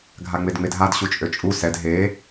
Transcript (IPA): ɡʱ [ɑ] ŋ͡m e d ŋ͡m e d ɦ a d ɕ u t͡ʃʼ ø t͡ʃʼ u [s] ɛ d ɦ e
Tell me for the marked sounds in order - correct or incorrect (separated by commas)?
incorrect, correct